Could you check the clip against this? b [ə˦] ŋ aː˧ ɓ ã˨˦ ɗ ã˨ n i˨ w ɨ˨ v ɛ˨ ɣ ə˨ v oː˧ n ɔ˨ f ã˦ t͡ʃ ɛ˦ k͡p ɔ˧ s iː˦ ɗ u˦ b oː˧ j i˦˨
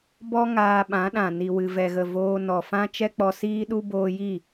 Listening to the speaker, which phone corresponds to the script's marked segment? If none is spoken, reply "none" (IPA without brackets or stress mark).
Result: ɔ˦